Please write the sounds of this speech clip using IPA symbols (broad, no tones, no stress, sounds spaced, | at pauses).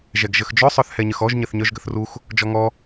ʒ ɛ ɡ ʒ ə x d͡ʒ œ sˤ œ θ h ɛ ɲ ə x ɔ ʒ ɲ ə θ ɲ œ ʒ ɡ ə θ r u x | d͡ʒ ɔ ŋ ɔ